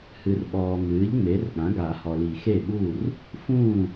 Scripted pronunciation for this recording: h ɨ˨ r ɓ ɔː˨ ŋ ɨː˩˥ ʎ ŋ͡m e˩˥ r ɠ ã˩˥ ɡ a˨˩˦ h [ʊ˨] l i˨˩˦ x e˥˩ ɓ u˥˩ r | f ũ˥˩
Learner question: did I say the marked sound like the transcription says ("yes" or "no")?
no